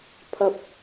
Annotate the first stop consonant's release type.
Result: aspirated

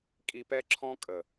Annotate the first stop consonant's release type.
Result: ejective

